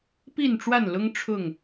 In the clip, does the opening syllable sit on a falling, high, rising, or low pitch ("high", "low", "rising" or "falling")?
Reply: falling